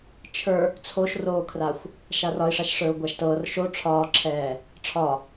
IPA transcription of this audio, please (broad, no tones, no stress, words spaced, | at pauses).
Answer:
t͡ʃʰə˞ | t͡sʰoʃroːkʰraxʷ | ʃarɒi̯ʂaʃ ʂə˞u̯ɡʷaʃtɤːr ʃo ʈ͡ʂʰɒːǁʰɛː | ʈ͡ʂʰɒ